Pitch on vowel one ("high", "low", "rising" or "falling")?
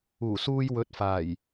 low